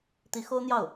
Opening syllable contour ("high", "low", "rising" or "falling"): rising